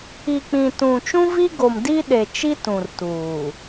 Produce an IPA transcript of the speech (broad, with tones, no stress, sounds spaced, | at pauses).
i˨ k͡p ĩ˨ t ũ˨ t͡ʃ ũ˦ v i˦ ɡ o˨ m d i˦ ɗ e˨ t͡ʃ i˦ t ũ˨ r t uː˨